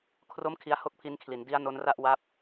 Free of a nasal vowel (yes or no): yes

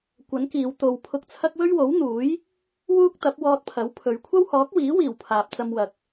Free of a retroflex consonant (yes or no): yes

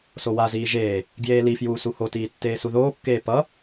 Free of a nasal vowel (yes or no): yes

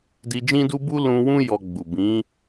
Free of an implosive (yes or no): yes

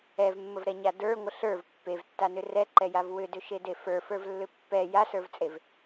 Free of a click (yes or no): no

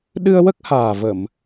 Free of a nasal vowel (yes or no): yes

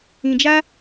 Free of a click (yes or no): yes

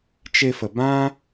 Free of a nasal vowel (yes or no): no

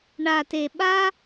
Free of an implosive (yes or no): no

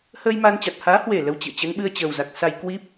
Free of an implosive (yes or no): no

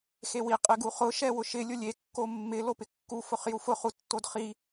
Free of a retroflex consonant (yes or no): yes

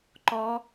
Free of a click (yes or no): no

